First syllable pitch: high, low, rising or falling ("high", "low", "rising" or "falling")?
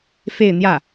falling